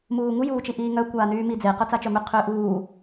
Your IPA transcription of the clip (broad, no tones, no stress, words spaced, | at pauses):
muːŋu juːt͡ʃiʔiːŋœ kʷaːnyːmid͡ze qœt͡sat͡ʃœmʏ qʰʏːʔuː